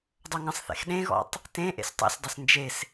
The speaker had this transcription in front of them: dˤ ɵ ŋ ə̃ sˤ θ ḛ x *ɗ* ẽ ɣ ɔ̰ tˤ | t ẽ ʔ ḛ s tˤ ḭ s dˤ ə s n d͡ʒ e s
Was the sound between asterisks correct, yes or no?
yes